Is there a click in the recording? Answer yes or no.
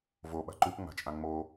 yes